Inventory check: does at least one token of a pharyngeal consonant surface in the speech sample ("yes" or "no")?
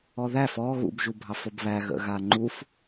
no